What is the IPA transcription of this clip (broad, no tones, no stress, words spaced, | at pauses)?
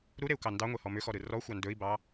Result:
ɾuɾeu̯kɑ ndɑŋʷehɔ mʏxɔɾɯ rɔxʷɑ ndɵi̯bɑ